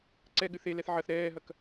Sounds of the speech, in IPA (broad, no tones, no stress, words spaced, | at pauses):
ǀɛɠɨ θelɛθ ʕɐθ ɾɛːɦɐk